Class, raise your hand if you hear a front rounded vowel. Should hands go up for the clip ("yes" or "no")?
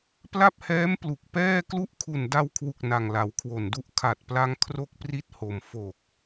no